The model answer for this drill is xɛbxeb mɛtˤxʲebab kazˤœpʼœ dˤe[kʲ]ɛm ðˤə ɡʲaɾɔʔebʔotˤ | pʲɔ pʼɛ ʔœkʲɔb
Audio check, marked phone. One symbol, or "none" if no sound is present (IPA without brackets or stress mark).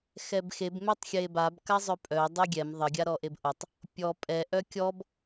ɡʲ